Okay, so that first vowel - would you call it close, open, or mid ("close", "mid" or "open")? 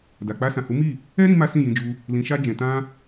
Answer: open